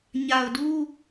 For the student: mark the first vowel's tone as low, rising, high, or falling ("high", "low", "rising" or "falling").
low